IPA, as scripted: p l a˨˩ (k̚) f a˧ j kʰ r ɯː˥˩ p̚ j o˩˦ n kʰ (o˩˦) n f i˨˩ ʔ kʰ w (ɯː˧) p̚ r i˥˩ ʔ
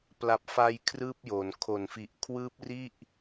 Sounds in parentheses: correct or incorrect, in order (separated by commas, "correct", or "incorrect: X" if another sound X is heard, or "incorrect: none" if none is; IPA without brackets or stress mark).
incorrect: p̚, incorrect: o˨˩, incorrect: ɯː˦˥